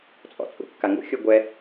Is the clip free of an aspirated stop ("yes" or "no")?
yes